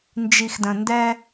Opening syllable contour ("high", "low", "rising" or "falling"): low